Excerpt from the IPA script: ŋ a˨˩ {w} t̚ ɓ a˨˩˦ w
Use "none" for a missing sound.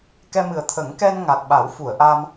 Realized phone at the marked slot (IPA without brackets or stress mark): none